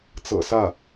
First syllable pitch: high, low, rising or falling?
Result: low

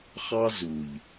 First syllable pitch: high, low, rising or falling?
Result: high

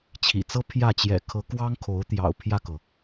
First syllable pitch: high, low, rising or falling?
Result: low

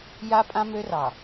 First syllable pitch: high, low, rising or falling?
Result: high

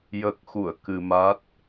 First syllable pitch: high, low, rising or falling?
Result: low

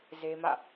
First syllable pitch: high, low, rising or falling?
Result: high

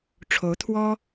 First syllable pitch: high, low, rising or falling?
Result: rising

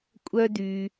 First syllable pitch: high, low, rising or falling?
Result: high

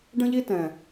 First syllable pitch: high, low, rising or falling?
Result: high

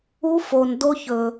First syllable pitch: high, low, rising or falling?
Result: high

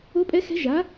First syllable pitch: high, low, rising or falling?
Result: rising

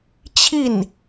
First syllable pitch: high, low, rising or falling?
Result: falling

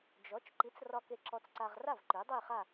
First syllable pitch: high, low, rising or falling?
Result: rising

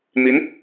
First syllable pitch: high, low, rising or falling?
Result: rising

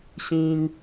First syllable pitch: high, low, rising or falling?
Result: high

